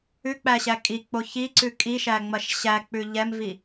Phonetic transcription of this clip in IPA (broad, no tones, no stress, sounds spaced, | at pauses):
ʉ k͡p æ ɕ æ kʼ i k͡p o ç i ǀ ʉ kʼ i ʃ æ ŋ͡m ɐ ʃ ɕ æ k͡p ʉ ʎ ɛ m v i